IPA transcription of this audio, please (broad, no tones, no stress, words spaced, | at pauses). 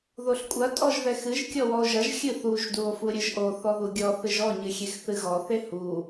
ðoɬkʷʼɐ tʼɔʒðɛxɨʒ kʲɔwɔo̯ʒɐʒ xʲɨθuʒ duo̯fuɾʲɘʒʔo θɔðuɡʲɔ θɨʒɔ ɲɨxʲexθɨɣɔ θehu